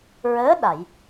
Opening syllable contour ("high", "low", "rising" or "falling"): rising